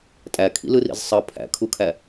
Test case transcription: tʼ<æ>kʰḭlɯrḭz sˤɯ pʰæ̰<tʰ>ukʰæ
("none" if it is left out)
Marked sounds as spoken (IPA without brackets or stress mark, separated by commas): æ, kʰ